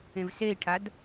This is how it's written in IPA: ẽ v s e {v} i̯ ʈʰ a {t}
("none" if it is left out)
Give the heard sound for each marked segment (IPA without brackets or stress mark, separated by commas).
none, d